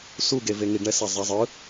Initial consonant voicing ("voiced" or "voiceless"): voiceless